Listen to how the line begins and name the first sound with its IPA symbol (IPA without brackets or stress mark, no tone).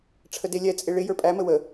ʈ͡ʂʰ